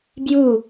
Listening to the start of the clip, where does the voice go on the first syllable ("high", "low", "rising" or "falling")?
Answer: falling